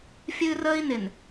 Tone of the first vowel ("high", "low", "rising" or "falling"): high